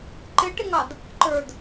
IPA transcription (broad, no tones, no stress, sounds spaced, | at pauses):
ǃ ɪ ʈ ɪ ŋ ɑ d | ǃ ə˞ d